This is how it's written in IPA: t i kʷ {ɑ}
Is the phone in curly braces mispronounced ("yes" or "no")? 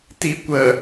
yes